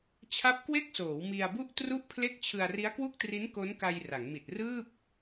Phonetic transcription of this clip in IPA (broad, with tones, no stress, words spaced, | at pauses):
t͡ɕʰa˦˥p̚kwe˥˩k̚soː˩˦w mi˧a̯bu˥˩ʔ tru˥˩ʔpʰle˥˩k̚ t͡ɕʰɯ˧a̯ ri˦˥a̯kwu˥˩k̚tri˦˥n ko˦˥nka˧j ra˩˦ŋmi˨˩t̚ rɯː˥˩p̚